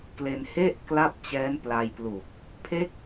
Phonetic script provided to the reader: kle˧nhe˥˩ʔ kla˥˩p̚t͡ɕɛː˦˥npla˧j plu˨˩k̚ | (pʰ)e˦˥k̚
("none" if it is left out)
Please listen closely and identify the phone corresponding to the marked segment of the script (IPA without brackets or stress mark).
pʰ